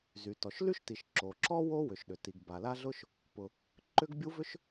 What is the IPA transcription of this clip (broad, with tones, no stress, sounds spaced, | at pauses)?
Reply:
z y˩ t ɔ˩ ʃ l y˥ ʃ t i˩ ʃ ǁ o˩ ǁ ɔ˥ w o˥ w ʏ˩ ʃ ɗ ʏ˩ t i˩ ɡ b a˩ l a˥ ɮ ʊ˥ ʃ | p ʊ˩ | ǃ ʏ˥ ɡ bʲ u˥ v ʏ˥ ʃ